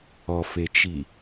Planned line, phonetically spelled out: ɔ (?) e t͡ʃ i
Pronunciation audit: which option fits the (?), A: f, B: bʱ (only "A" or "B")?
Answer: A